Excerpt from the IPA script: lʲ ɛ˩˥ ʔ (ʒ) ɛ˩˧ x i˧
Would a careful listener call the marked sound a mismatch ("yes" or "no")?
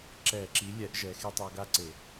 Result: no